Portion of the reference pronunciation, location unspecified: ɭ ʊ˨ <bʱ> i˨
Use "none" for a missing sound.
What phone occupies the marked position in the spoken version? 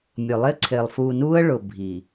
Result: bʱ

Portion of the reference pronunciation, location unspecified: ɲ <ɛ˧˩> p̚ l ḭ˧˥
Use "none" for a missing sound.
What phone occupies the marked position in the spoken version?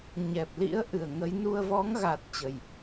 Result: ɛ˨˩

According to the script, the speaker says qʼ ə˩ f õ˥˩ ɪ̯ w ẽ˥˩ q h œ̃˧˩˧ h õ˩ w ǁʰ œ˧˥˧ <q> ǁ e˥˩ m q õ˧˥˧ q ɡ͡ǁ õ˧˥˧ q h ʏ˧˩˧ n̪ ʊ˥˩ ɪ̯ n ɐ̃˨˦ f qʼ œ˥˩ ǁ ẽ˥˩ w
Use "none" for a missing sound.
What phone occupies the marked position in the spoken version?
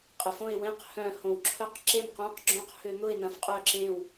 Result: q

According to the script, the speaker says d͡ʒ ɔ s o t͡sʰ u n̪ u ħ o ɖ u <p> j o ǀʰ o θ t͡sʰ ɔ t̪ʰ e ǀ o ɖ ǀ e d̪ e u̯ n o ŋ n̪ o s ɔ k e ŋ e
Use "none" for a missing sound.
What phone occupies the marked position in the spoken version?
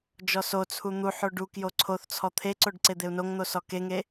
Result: k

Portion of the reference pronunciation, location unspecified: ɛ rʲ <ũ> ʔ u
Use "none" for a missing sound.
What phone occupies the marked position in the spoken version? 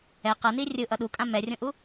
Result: õ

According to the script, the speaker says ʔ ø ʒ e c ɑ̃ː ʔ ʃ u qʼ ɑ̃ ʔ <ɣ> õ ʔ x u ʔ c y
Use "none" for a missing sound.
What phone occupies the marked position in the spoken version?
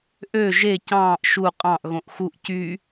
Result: ɣ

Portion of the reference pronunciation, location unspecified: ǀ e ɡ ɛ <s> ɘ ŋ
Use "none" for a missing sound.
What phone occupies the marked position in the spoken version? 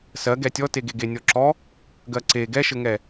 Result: ʃ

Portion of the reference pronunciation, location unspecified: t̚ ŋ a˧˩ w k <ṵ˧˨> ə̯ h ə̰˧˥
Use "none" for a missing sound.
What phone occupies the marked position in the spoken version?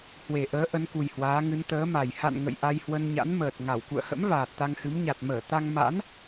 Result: ṵ˧˨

